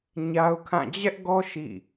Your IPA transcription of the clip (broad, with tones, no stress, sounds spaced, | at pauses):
ɲ a˦ ʊ̯ kʰ ã˦˨ d͡ʑ ɛ˦ ʔ ɡ ɔ˦ ʃ ḭ˦˨